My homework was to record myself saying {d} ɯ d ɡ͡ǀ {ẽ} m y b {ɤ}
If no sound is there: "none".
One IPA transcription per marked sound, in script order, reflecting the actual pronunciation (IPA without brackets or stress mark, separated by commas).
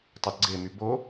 tˤ, e, o